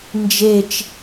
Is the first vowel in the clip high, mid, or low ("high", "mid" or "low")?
mid